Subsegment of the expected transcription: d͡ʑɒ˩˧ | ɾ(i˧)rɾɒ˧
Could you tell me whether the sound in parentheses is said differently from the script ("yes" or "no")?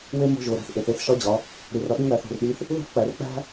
yes